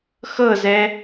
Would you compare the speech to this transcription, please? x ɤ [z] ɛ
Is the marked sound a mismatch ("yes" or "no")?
no